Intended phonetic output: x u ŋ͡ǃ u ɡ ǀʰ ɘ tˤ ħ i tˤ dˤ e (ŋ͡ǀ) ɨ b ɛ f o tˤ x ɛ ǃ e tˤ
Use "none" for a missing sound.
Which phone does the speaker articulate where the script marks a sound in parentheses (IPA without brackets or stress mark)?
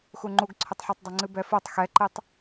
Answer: ŋ͡ǀ